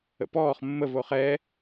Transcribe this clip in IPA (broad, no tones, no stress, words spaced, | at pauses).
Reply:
ə̰pɔːχ mːəv oχɛ